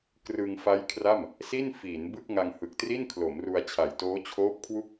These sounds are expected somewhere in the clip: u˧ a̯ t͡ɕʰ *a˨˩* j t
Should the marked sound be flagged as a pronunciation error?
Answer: no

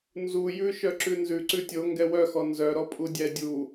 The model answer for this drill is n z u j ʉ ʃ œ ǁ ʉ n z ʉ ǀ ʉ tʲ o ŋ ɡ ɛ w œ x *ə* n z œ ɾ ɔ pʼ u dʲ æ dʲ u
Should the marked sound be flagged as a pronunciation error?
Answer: yes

